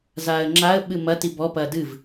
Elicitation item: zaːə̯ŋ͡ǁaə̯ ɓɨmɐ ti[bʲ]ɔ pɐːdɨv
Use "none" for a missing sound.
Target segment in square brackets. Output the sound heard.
b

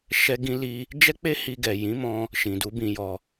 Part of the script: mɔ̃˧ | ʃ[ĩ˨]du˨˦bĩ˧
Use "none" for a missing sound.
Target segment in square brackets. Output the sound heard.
ĩ˨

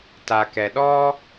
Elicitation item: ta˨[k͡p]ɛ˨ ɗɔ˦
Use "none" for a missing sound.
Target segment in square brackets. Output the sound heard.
k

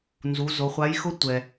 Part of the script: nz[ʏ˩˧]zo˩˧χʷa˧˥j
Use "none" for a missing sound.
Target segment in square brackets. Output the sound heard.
u˩˧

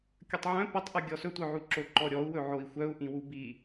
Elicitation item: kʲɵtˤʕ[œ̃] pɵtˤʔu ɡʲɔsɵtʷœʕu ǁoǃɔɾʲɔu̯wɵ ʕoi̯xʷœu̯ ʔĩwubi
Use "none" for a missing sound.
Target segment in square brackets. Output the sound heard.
œ̃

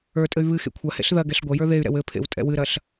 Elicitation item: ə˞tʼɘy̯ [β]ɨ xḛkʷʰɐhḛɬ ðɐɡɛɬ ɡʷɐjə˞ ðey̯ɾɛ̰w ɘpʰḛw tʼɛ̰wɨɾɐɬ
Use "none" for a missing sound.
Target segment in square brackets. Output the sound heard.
β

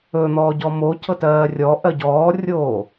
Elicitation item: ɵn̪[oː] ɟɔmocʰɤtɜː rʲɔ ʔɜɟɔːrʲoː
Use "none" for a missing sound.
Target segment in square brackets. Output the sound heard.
ɔː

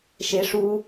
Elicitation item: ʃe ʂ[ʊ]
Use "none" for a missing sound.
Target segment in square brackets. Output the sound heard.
u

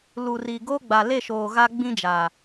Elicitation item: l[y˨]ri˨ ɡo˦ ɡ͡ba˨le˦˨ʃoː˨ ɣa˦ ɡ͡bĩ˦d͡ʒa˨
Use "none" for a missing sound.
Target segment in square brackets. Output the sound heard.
u˨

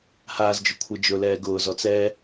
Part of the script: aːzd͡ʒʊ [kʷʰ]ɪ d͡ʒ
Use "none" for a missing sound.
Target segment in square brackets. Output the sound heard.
kʷʰ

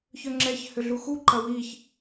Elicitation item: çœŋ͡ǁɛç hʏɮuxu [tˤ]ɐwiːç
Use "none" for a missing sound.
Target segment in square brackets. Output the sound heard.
ǃ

